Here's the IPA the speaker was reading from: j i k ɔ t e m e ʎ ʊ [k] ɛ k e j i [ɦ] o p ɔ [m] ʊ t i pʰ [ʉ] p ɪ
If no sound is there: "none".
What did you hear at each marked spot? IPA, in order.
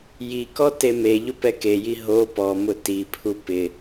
p, ɦ, m, u

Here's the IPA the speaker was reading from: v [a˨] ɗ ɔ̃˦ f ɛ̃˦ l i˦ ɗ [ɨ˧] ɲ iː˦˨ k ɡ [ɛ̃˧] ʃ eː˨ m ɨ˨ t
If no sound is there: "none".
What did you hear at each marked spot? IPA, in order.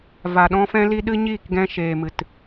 a˨, ɨ˦, ɛ̃˧

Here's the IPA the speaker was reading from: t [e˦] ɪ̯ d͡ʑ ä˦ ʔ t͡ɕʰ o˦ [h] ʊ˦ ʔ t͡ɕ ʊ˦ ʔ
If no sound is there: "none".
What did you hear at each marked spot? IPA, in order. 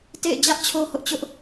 ḛ˦˨, h

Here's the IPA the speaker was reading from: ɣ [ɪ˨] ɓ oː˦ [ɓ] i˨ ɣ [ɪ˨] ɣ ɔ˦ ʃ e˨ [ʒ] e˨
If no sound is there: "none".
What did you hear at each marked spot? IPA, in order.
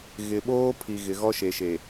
ɪ˨, pʰ, ɪ˨, ʃ

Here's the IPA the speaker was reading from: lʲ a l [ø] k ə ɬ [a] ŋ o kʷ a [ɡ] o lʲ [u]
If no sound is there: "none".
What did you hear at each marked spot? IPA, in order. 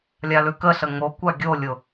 ʉ, ə, ɡʲ, ʊ

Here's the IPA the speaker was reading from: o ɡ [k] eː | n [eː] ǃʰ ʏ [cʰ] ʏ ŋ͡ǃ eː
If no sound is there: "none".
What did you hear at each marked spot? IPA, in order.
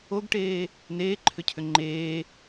ʈ, eː, cʰ

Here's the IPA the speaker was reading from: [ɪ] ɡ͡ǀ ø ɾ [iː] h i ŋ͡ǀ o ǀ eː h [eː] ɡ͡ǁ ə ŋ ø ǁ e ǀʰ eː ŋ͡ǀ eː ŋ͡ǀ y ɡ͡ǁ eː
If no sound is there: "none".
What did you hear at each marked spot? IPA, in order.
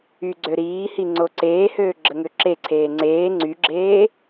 y, iː, øː

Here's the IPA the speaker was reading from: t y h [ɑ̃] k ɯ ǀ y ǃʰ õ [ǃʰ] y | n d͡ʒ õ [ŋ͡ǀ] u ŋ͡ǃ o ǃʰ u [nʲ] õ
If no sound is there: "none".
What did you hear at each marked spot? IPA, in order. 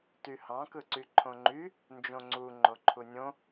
ɑ̃, ŋ͡ǃ, ŋ͡ǀ, nʲ

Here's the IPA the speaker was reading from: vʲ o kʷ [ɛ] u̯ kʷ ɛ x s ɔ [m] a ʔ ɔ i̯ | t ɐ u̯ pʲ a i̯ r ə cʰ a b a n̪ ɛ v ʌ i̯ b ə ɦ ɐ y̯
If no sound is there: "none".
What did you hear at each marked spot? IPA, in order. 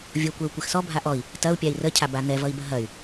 ɛ, bʱ

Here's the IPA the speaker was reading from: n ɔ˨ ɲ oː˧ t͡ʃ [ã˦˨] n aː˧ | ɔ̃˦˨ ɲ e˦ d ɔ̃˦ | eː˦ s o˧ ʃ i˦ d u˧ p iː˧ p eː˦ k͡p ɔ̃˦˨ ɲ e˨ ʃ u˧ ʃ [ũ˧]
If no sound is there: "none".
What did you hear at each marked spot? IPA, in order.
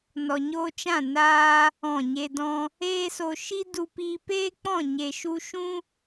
ã˦˨, ũ˦

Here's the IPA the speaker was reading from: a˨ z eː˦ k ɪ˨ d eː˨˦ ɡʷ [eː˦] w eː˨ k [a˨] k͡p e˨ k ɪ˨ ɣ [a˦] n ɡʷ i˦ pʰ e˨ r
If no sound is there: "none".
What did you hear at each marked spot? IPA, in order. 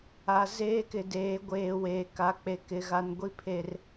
eː˨, a˨, a˨

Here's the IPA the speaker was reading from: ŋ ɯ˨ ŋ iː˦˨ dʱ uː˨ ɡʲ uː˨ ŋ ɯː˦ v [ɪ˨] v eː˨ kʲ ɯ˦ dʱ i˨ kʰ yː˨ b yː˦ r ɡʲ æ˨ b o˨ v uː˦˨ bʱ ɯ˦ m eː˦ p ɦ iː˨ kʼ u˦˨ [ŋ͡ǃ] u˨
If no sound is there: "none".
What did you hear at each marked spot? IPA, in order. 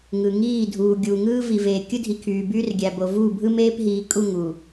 i˨, ŋ

